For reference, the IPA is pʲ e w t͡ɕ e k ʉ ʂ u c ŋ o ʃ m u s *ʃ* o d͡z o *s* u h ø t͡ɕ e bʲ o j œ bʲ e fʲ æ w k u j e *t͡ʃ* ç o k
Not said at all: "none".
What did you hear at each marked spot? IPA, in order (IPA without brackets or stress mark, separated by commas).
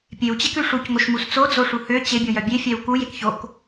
t͡s, ʂ, k